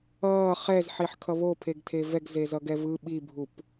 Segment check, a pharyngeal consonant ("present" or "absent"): present